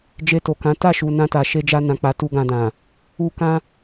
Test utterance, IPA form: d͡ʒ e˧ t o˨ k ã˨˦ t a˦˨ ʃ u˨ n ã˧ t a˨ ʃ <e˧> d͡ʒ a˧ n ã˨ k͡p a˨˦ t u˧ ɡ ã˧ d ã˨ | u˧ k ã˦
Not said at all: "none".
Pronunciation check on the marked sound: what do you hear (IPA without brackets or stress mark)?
e˧